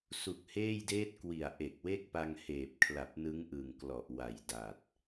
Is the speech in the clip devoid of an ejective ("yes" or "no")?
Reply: yes